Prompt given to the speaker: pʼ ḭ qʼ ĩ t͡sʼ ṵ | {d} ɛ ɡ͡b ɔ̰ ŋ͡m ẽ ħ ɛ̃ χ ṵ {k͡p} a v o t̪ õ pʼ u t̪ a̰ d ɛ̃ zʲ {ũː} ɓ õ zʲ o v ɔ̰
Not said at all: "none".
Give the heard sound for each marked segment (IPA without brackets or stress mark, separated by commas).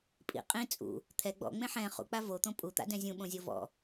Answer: t̪ʰ, k͡p, ũ